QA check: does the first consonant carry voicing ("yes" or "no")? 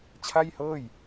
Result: no